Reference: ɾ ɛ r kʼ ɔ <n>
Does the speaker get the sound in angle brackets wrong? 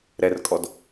yes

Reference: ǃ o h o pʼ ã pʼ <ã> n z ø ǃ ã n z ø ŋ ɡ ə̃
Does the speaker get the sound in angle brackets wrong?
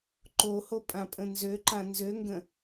yes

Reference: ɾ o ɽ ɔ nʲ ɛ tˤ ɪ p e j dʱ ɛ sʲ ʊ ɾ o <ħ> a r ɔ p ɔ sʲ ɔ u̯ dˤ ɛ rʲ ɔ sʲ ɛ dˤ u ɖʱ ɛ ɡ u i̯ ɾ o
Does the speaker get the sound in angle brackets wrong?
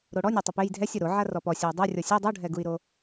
yes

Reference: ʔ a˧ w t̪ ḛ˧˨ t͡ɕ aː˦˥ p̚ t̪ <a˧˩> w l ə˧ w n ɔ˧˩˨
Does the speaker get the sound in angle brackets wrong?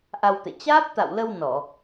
yes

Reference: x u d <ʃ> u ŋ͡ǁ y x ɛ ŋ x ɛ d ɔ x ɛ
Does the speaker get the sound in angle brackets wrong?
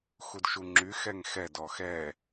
no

